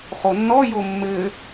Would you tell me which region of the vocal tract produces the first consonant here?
uvula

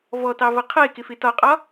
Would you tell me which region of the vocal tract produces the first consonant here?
lips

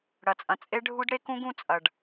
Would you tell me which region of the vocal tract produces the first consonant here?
retroflex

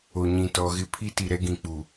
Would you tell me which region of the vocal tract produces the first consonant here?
palate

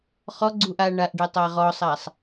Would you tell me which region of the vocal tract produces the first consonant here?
uvula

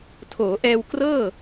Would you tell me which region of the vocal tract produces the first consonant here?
tongue tip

